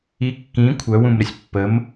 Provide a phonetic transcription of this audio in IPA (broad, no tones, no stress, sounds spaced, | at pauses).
i kː ĩ kʷʰ œ w ũ m ɾ ə sʲ pː ə m